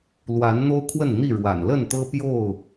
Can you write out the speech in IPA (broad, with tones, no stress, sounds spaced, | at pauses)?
l w a˨˦ n n̪ o˦ ʊ̯ kʰ w ə˥˨ n n̪ i˥˨ ɻ w a̰˨˩ n l ə˥˨ n t̪ ɤ˦ p j o˥˨ ʊ̯